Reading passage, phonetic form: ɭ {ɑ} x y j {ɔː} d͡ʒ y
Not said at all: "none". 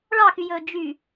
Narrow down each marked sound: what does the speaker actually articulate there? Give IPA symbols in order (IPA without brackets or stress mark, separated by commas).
ɑ, ɵː